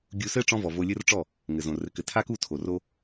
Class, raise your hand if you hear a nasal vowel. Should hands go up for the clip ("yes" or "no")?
yes